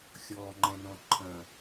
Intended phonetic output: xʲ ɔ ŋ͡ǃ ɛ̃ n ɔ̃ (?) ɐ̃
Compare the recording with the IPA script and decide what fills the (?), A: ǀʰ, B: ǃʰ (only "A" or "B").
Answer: B